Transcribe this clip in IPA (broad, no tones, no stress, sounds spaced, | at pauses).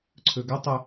ǀʰ ɵ ɡ ɵ tˤ ɵ